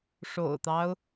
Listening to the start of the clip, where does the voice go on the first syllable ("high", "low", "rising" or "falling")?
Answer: low